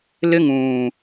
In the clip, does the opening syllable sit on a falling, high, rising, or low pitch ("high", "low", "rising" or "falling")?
high